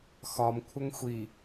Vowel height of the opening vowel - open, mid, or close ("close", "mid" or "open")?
open